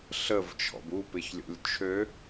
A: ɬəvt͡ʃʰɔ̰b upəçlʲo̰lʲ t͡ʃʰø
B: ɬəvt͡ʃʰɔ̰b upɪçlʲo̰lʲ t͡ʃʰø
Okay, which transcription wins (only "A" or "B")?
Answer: B